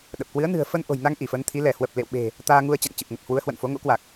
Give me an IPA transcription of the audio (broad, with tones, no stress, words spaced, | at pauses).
ɗə˨˩p̚kwɨ˨˦ə̯ nɨ̤˨˩ə̯fə˧n ʔo̤˨˩jna˧ŋ ʔi˧˩fə˨˦nt̪ʰi˨˦ lɛ˧˩hwə˨˩p̚lḛ˧˨wɓe̤˨˩ | t̪aː˧ŋu˧ə̯ t͡ɕa̰˧˨ŋ t͡ɕɨ˨˩p̚ŋə˨˩t̚ hwu˨˦ə̯hwə̰˧˨nfo˨˦ ŋo̰˧˥kwa˨˩k̚